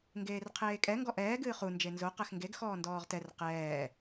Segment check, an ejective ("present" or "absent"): present